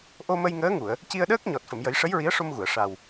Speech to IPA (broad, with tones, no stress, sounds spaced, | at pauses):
ʔ o˧ m ə˧ j ŋ əː˧˥ ŋ u˨˩˨ ə̯ | c i˧ ə̯ ɗ əː˦˥ k̚ ɲ ɔ˨˩ t̚ f ə˨˩˨ m j ə˨˩˦ j ʂ ə˧˥ j ɹ i˧˥ ə̯ ʂ o˧ m ɣ u˨˩˨ ə̯ ʂ a˨˩ w